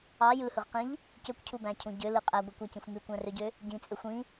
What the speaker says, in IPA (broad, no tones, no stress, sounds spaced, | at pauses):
ɑ j ɯ h ɯ ʁ q ĩ ʎ | c ø kʷ cʰ u b æ̃ cʰ ũ ɟ ø l ɯ qʼ æ ɡʷ ɯ kʷ æ c ĩ xʷ m y kʷ æ̃ r ø ɟ ø | ɟ ĩ t͡sʼ ø xʷ ĩ